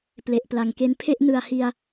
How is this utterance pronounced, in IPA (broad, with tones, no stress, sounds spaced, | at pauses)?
p l e˨˩ ʔ p l a˨˩ ŋ k e˧ n pʰ e˥˩ ʔ n ɯ˨˩ a̯ h i˧ a̯